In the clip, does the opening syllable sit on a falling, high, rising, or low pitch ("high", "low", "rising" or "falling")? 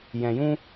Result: low